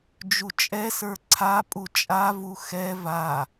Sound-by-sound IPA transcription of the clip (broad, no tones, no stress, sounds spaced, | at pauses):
d͡ʒ u t͡ʃʼ ɛ s ə˞ ǀʰ a pʼ u t͡ʃʼ a v u x ɛ v a